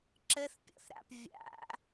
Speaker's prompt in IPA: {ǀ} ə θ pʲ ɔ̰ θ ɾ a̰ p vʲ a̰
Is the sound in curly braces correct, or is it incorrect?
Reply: incorrect